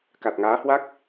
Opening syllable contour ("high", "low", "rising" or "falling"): low